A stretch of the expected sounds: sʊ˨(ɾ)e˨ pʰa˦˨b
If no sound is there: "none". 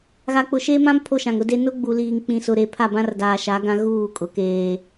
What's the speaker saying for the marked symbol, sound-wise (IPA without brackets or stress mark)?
ɾ